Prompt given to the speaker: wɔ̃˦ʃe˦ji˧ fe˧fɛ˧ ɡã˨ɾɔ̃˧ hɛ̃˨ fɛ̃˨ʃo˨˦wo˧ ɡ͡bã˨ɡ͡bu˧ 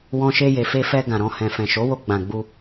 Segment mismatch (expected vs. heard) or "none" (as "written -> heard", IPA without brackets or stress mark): i˧ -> e˧